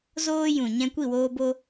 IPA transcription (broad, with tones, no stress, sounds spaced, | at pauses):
z oː˦ j ũ˨ ɲ ɛ̃˧ kʷ i˦˨ w oː˧ b o˧